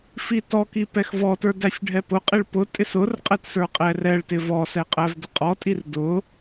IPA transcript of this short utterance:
f i t ɔ k i p ɛ x v ɔ t ə˞ d æ sʲ ɖʱ ɛ p ʊ qʼ i ɭ p ʊ tʼ ɪ s ʊ r qʼ ɛ t s ə˞ qʼ ɛ r ɛ ɭ t ɪ v ɔ s ɛ qʼ æ v d ə qʼ ɔ tʼ i r d ʊ

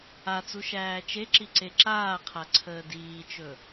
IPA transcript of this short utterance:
a t͡s u ʃ æː t͡ʃ e ǁ i ǀ e ǁ aː qʰ a ǀʰ əː d iː t͡ʃ ɵ

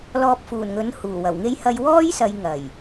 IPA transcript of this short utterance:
l ɔː˧ p̚ f uː˨˩ n ŋ ɵ˨˥ n h uː˨˩ w ɐ˨˩ w ŋ e˥ j h ɐ˧ j w ɔː˥ j s ɐ˨˧ j ŋ ɐ˨˩ j

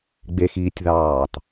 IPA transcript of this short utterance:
ɡ͡b e x iː tʲ ð ɑː t

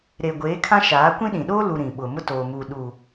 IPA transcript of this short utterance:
ɾ eː˨ ɡʷ eː˨˦ kʰ ã˦ ʃ aː˨˦ kʷ ĩ˦ ɗ ĩ˨ ɗ oː˦ l u˨ ɾ ĩ˨ ɓ ʊ˨ m ʊ˦ t oː˨ m uː˨ ɗ u˨

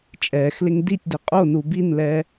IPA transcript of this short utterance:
t͡ʃʼ ɛː x l ɪ ŋ d i tʲ d ɪ qʼ o n u b i n l ɛː

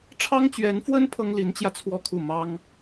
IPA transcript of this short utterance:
ʈ͡ʂʰ ɑ˥ ŋ t͡ɕ ɥ ɛ˧˥ n f w ə˥ n pʰ ɤ˥ ŋ l i˧˥ n t͡ɕ j ä˧ t͡sʰ w ɔ˥˧ kʰ u˥˩ m ɑ˥ ŋ

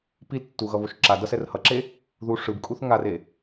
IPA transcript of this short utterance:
p i l tː u ɣ ʌ β o ʃ ǁ a d ʌ s ɛ r h ʌ ǁ e | ð u ʂ ɯ b kʼ u θ ŋ a r e

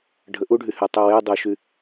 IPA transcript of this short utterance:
ɖʱ ə ʔ u ɖʱ y h y tˤ y w e dˤ u ʃ y

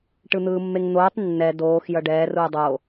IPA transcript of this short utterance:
ʈ ɯ n̪ ɯː mː e ŋ n̪ oː tˤ nː ɛ d oː x j ʌ ɖ ɛː r uː dˤ o

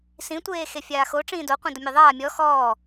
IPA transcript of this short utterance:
s ĩ tʷ eː x e fʲ aː x o ʈ͡ʂ ĩː d o qʷ ĩ d ʊ mʲ e ðˤ aː mʲ ɔ x ɔː

